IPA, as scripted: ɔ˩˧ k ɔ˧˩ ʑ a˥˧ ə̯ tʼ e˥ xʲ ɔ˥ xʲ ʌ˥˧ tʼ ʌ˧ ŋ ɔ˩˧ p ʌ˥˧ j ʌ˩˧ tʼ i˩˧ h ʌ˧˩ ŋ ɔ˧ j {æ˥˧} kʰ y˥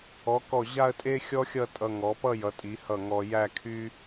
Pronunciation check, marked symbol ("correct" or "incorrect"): correct